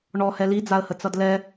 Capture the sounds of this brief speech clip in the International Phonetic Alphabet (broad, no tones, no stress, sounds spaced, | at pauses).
ɳ ɔ h ɛ l i d͡z a ə̯ h ə t͡s ʌ d l ɛ